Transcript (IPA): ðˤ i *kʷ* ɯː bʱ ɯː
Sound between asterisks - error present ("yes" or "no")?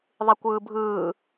no